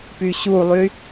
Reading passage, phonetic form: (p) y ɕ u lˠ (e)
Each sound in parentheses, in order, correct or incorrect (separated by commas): correct, incorrect